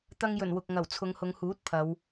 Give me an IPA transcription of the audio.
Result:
t̪ ɐ˧ ŋ j ɵ˨˩ n w ʊ˨ k̚ ŋ ɐ˨˩ w t͡sʰ ʊ˨˧ ŋ h ʊ˨˧ ŋ h uː˨˥ t̚ pʰ ɐ˨˧ w

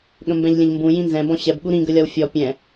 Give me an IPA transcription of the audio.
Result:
ɠ ə̃ m b ɛ̃ ʎ lʲ ə̃ ʎ m b ũ j ĩ n z ɛ̃ b ɔ̃ ɕ ɛ b ɠ u ɾ ĩ ɡ ə lʲ ɒ w fʲ ɔ pʲ ɛ̃

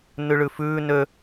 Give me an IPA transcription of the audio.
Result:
n ʉ ɭ ʉ f ʉː n ø

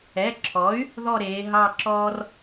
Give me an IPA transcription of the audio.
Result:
ɛ˩˧˩ ǁʰ ɔ˩˥ y̯ | ð ɔ˦˨ ɾ eː˩˧ ɦ ɑ˦˨ ǁ ɔː˦ r

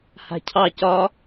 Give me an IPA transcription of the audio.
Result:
h a̤ cʰ ɑ c ɒ

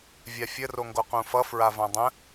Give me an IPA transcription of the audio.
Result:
vʲ a fʲ ə r o ŋ ɡ o q ũ f ʌ f ɹ a v ã dˤ ə̃

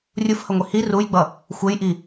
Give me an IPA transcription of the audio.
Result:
rʲ u f h ʌ ŋʷ i h i r u j ɡ͡b ʌ | xʷ e j ʔ i

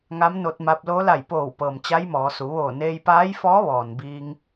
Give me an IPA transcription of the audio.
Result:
ŋ a˧˥ m n o˧ t̚ m a˧ p̚ l o˧˥ l a˧˩ j p oː˧˩ w p ɤː˩ m t͡ɕ a˧˥ j m ɔː˩˧ s u˩˧ ʋ oː˧˩ n eː˧ j p aː˧˥ j f ɔː˧˥ ʋ ɔː˩ n b iː˧ ŋ

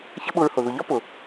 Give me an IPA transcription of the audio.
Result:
ç ə˦ ɓ ʊ˧ ɹ h ʊ˨ ð ʊ˨ ʎ ɒ˦ p ʊ˨

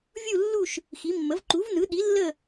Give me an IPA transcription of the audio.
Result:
vʲ u˦˨ lː u˦˨ ʃ | x i˩˥ mː ə˩˥ v ǃ u˩˥ v n ɯ˩˥ ɗ i˩˥ lː ə˦˨

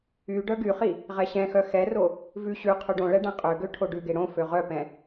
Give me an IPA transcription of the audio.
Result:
y ɖ œ ɡ y χ i | ʁ ɛ ɕ ɛ̃ x œ x ɛ r o | v ʉ ɕ ʉ qʰ ʉ ɖ õ ɭ ɛ ɖ ɛ̃ qʼ ø ɡ ø ʈʰ o ɖ ʉ ɡ e ɽ õ f ø ʁ œ p ɛ̃

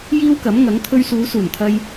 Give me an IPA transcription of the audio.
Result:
j iː˥ w k ɐ˨˥ m ŋ ɐ˨˥ ŋ t̪ʰ ɵ˧ ɥ s uː˨˧ s uː˨˩ n t̪ʰ ɐ˧ j

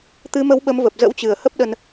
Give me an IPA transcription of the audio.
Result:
t̪ ɨ˨˦ m ə˨˦ w ɓ ə˨˦ m v ə˨˩ p̚ z ə̰˧˥ w t͡ɕ ɨ˨˩ ə̯ h ə˦˥ p̚ ɗ ə˧ n

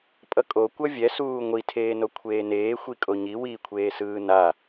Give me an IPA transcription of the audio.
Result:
pʼ ʌ kʼ o kʷ ʌ vʲ ɛ s uː ŋʷ i tʰ eː n o kʷʰ eː n eː xʷ i kʼ o ɲ i w i kʷʰ eː s ɯː n a

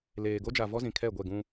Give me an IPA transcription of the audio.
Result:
l eː˨ ɡ o˦ d͡ʒ a˨ v ɔ˦ z ĩ˨ kʰ ɛ˦˨ ɡʷ ɛ˦˨ ɡ ũ˦

